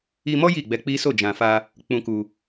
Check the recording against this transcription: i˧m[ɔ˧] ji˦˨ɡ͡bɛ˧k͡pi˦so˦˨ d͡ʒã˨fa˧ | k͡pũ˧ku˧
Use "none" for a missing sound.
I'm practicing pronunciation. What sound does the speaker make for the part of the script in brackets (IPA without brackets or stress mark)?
ɔ˦